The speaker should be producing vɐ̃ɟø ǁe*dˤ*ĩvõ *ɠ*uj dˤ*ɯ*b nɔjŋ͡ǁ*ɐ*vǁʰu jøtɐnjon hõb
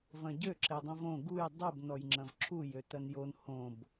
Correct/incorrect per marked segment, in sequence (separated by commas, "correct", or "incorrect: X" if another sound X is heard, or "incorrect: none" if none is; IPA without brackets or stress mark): correct, incorrect: ɡ, correct, incorrect: ɐ̃